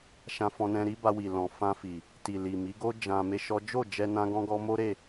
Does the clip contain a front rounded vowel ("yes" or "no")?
no